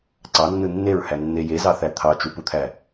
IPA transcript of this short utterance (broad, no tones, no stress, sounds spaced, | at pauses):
ǀ ɑ nː ɯ nː e ɹ h æ nː e j e z ɑ θ æ t̪ʰ ɑ t͡ʃ u p u t̪ʰ æ